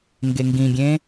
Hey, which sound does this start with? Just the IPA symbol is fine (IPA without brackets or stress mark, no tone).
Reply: ŋ